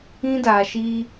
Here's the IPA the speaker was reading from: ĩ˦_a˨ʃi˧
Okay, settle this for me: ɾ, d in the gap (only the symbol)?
d